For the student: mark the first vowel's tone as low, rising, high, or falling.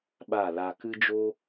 falling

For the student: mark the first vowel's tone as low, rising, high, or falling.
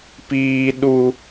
high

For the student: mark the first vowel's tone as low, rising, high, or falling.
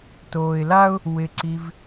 low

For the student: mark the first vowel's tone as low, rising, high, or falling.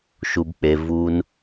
low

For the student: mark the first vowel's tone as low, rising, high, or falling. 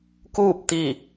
falling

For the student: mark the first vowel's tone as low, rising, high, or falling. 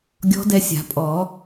rising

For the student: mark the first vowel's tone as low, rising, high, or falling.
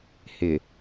low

